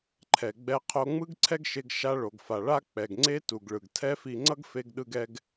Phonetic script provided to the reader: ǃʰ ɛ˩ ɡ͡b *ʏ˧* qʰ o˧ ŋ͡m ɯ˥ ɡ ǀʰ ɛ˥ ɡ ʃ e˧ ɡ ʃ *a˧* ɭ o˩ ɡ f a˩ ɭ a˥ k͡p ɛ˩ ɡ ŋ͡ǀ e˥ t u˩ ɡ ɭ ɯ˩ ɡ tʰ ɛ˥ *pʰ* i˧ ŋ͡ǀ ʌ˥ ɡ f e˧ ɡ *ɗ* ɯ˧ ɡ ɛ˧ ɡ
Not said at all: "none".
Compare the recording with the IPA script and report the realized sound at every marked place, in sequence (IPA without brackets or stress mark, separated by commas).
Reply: ɛ˧, a˧, f, ɗ